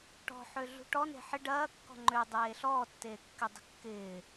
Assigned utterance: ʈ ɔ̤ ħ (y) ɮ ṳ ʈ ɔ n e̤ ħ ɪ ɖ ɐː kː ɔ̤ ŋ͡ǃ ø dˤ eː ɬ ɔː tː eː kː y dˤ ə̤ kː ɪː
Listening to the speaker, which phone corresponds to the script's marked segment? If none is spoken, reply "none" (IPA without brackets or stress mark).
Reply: ø